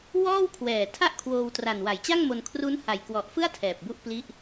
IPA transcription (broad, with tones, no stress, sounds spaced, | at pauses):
w ɔː˥˩ w kʰ w ɛː˨˩ tʰ a˥˩ ʔ kʰ w oː˧ w t r a˨˩ n w a˩˦ j t͡ɕ a˥˩ ŋ m o˧ n kʰ r u˦˥ n h a˨˩ j k w ɔ˨˩ ʔ f ɯ˥˩ a̯ tʰ ɛː˨˩ p̚ b u˥˩ ʔ p l i˥˩ ʔ